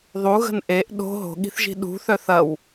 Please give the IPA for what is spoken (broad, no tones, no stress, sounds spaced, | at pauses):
ðˤ u ɣ ə̤ n ʔ e ʔ ɗ o̤ ɦ o̤ ɠ i̤ θ ʒ i̤ ɗ ṳ θ œ θ ɐ w